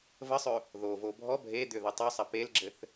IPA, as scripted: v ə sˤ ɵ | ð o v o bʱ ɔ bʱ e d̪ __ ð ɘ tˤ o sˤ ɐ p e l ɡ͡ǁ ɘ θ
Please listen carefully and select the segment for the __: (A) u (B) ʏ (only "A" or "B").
B